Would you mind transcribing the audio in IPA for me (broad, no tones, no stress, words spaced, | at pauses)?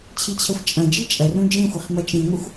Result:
t͡ɕʰit͡ɕʰɐxʷt͡ʃʼɐ̃d͡ʒi t͡ʃʼɐrũ d͡ʒẽxʷɘχ mɐt͡ʃĩŋʷɘxʷ